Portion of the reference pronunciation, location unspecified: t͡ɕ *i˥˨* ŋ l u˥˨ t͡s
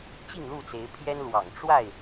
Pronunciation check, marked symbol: correct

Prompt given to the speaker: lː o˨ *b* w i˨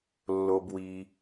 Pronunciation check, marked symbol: correct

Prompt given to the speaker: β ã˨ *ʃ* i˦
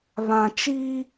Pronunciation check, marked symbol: incorrect: t͡ʃ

